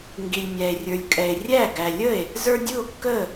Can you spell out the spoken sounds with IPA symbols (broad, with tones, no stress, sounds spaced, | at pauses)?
ŋ ɡ i˨ lʲ mʲ æ˨ e̯ rʲ ə˞˨ lʲ kʼ ɛ˨ e̯ rʲ æ˥˩ ɡ æ˨ lʲ ə˥˩ e̯ | z ə˞˦ dʲ u˥˩ o̯ kː ə˥˩